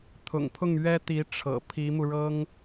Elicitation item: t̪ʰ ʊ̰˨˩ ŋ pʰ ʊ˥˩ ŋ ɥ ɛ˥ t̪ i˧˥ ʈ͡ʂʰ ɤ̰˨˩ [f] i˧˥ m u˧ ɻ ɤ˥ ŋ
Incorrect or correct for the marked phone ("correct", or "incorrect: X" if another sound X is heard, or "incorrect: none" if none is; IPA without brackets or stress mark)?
incorrect: pʰ